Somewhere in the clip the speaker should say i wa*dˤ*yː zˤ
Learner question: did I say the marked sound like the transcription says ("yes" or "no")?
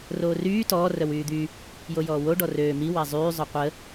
no